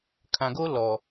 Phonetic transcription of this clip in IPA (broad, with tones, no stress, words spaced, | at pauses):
kʰã˨ɡo˦ lɔ˨